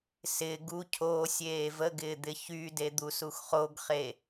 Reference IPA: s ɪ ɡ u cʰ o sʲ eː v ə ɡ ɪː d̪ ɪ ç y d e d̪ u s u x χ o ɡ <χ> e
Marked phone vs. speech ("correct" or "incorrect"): correct